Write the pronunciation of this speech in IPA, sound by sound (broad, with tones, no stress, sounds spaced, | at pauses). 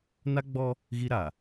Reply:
n a˦ ɡ͡b ɔ˦ | ɣ i˦ ɾ a˨